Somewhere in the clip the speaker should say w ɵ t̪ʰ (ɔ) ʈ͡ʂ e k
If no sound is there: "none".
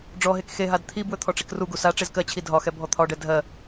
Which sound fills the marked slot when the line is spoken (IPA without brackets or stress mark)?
ɔ